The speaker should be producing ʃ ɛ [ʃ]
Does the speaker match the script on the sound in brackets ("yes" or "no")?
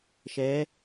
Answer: no